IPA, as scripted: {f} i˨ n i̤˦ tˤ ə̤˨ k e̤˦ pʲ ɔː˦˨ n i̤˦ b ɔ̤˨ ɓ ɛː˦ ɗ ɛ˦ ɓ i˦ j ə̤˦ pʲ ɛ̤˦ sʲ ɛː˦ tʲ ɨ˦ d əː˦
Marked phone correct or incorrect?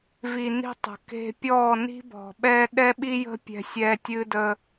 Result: incorrect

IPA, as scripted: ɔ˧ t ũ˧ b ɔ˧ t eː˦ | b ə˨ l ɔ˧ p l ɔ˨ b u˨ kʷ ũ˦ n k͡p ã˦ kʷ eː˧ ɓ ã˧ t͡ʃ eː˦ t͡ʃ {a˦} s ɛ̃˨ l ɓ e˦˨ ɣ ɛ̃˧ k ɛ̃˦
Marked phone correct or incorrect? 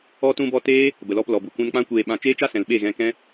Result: correct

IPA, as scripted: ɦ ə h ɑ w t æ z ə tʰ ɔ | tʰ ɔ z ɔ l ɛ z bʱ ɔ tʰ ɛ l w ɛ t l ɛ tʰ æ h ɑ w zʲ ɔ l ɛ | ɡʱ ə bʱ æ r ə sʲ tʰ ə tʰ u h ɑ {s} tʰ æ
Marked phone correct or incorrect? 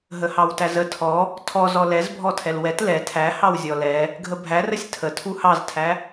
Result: incorrect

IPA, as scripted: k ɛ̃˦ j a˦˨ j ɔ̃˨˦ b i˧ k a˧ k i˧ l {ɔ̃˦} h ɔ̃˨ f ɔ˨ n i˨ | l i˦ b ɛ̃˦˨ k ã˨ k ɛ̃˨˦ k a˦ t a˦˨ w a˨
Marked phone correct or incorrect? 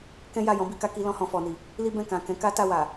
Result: incorrect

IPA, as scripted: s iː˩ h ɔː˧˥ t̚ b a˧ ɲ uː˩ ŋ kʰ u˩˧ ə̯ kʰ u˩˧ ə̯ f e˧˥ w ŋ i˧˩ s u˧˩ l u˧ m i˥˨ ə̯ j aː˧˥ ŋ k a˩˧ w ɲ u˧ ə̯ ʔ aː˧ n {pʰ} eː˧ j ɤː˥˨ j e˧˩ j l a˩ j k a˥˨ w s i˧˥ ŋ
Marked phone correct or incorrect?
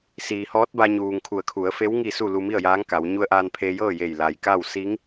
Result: correct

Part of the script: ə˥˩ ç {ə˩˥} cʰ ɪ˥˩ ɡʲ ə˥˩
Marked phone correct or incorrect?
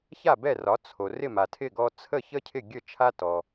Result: incorrect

